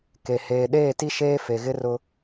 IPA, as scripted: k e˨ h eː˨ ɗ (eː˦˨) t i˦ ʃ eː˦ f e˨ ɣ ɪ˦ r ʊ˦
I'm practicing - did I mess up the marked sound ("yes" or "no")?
no